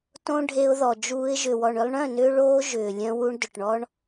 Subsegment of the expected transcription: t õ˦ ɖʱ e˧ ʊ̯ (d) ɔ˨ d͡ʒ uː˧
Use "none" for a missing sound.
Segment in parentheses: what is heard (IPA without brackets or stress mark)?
ð